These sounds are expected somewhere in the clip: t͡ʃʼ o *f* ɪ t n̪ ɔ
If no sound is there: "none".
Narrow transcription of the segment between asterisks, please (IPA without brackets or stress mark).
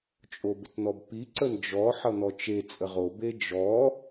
b